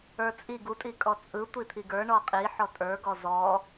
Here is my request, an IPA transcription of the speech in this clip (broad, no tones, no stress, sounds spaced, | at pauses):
ə˞ t͡sʼ i ɡ u tʼ i kʼ ɔ t͡sʼ ɯ tʷ i t̪ʰ i ɡ ə˞ ɳ ɔ qʼ i ħ ɔ tʼ ə˞ ɡ ɔ z ɔ